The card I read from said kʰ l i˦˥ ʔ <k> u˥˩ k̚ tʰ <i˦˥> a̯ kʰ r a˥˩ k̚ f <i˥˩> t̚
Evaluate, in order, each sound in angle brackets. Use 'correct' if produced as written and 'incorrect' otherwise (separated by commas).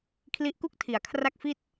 correct, incorrect, correct